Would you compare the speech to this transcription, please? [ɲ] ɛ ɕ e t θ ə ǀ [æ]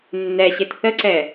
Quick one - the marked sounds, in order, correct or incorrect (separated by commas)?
incorrect, incorrect